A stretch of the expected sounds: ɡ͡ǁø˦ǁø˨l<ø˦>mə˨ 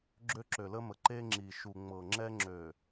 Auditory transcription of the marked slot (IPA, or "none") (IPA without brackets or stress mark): ə˦